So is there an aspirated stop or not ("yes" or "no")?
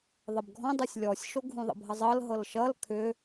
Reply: yes